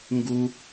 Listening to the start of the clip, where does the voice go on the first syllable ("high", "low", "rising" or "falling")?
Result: high